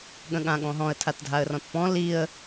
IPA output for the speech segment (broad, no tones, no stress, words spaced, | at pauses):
ɠə̃ɠãɠɔ̃ɦɔ̃ə̯ tʰatdʱaə̯rɔ̃tpɔ̃ liə̯